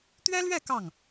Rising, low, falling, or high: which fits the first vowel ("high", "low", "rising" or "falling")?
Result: high